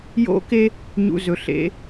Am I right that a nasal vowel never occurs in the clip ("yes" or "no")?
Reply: yes